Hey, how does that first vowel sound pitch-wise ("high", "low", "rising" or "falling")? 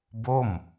falling